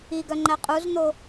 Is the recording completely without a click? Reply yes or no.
no